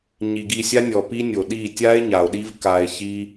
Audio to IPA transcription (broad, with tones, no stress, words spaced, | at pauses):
ɲi˨ɡi˧sʲa˦nʲɔ˨ pi˦nʲo˨ɗi˦˨ tʲa˦e̯ ɲa˨o̯ɗi˦v ka˧e̯çi˦